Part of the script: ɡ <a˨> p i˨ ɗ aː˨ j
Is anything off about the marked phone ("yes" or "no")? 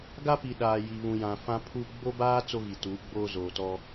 yes